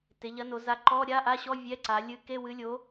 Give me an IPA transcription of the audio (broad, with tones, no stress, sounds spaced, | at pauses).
t e˩˧ ʎ ɐ˨˥ n o˩˧ z a˨˥ ǃ ɔ˧˥˧ ɾʲ a˧˥˧ ʔ a˧˥˧ ɕ ɔ˧˥˧ vʲ ɛ˧˥˧ ǀ a˩˧ lʲ ɨ˨˥ k e˧˥˧ w ɨ˨˥ lʲ o˨˥